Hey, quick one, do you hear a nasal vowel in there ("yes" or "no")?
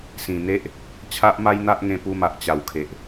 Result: yes